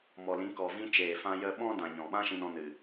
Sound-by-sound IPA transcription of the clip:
m ɔ˨ l ĩ˨˦ k ɔ˨ v ĩ˧ t͡ʃ eː˨ f ã˧ j ə˦ ɓ ɔ̃˦ d ã˨ ɲ ɔ̃˨ ɓ ã˦ ʃ ĩ˧ n ɔ̃˧ n ɨ˨

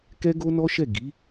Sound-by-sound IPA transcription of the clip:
k ɛ˦ ɡ o˦ n ɔ˦ ʃ ɛ˦˨ ɡ i˨˦

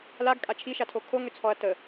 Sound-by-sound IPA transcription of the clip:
l a ɡ kʼ a t͡ʃʰ i ʃ a tʰ o kʰ o ŋ ʏ t͡sʰ ɔ ɐ̯ t ə

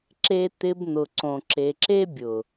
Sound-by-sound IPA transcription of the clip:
ǁ e˧ t̪ ɪ˧ b n̪ ʊ˨ ǀ õ˨ ǁ e˨ ǁ e˦ bʲ ʊ˨

